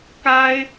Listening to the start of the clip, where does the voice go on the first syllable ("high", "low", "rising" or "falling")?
high